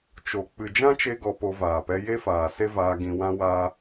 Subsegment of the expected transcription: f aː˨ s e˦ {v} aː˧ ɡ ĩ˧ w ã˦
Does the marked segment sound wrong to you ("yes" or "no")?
no